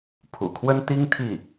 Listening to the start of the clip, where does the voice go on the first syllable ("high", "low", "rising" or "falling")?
low